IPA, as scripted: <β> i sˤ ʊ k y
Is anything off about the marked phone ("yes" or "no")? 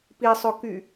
yes